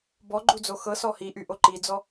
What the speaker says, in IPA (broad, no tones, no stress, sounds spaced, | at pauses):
b ɔ ɡ͡ǃ u d͡z o x ɤ s ɔ h i ʔ y ʔ o ǃ i d͡z ɔ